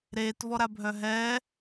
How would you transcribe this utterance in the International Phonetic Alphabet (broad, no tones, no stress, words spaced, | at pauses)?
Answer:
ɾeːtvɔɾabʱœ ɦɛː